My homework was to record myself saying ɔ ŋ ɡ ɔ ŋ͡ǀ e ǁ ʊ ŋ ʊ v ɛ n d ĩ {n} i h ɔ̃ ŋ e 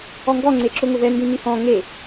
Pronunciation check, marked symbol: correct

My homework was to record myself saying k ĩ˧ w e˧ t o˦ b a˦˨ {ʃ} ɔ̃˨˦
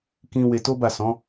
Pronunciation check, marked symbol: incorrect: s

